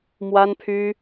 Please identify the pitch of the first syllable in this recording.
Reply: high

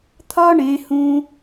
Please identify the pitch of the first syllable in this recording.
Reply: high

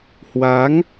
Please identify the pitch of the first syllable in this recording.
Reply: rising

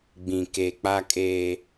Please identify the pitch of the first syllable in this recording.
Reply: low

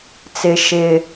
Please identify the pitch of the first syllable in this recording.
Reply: low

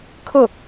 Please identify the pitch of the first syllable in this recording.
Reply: falling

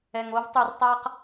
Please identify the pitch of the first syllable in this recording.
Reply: low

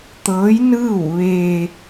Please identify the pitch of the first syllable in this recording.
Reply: rising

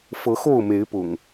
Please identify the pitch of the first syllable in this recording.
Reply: rising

